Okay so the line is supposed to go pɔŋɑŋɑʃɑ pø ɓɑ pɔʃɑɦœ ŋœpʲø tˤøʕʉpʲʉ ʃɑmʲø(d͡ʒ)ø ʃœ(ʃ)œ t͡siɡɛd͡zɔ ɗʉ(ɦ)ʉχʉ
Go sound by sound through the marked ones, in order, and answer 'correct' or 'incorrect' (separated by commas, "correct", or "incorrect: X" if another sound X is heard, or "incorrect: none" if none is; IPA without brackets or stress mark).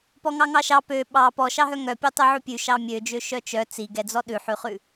correct, incorrect: t͡ʃ, incorrect: ħ